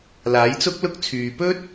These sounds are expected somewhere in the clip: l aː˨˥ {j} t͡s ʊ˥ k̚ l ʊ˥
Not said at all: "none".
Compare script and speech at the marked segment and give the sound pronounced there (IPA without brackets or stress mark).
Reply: j